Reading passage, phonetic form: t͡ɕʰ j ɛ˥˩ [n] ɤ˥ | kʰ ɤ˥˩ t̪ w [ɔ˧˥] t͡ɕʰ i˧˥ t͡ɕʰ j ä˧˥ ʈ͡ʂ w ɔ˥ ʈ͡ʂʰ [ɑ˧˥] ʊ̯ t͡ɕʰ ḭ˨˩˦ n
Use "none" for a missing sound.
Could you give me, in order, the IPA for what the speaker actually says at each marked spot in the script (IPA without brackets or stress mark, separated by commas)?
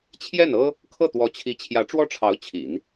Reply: n, ɔ˧˥, ɑ˧˥